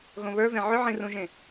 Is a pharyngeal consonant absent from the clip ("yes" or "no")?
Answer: no